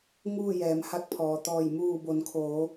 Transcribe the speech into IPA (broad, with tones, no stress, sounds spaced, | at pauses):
ŋ uː˥˨ j ɛː˩˧ m h a˧˥ k̚ pʰ ɔː˩ t̪ ɔː˧˩ j m uː˧˩ b o˩˧ n kʰ oː˩˧